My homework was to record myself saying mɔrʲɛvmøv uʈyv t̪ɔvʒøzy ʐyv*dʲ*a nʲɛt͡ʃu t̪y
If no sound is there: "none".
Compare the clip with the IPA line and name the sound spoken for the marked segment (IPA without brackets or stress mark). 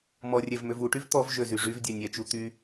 dʲ